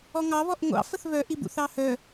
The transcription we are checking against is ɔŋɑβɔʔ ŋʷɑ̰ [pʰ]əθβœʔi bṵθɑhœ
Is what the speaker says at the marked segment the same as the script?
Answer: no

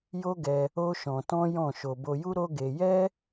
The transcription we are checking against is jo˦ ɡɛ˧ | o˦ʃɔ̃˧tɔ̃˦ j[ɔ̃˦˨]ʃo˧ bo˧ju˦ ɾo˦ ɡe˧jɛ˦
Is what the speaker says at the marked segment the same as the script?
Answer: yes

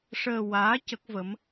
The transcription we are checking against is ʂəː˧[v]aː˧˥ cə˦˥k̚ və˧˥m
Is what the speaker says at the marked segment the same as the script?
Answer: no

